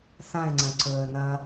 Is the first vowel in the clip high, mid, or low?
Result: low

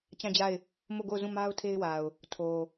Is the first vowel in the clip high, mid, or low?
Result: low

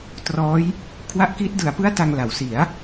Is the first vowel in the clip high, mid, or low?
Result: mid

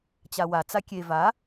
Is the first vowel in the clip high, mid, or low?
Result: low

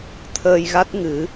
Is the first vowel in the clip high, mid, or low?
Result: mid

